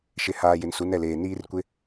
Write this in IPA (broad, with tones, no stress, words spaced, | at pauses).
ʃɪ˨haː˨ jɪ˨nsu˨˦nɛ˦˨leː˨ niː˦rkʷɪ˦